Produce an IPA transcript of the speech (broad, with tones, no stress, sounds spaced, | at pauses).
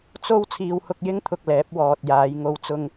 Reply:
t͡s o˥ w t͡sʰ iː˧ w h ʊ˧ k̚ j ɪ˥ ŋ t̪ʰ ʊ˨ k̚ l ɛː˨˥ p̚ w ɔː˨ t̚ j aː˨˧ j ŋ o˧ w t͡s ʊ˧ ŋ